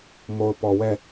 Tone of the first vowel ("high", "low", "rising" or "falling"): low